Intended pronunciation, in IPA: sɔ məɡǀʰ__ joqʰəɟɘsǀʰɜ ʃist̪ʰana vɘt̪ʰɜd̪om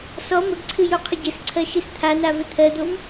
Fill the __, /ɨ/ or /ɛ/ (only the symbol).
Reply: ɨ